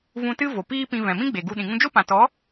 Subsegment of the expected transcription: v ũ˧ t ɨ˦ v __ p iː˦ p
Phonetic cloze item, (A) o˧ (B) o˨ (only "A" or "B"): B